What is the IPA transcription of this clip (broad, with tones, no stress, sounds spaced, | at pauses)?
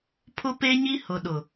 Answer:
pʰ ʊ˦ p e˦ ɲ i˦ h ʊ˨ ɗ ʊ˨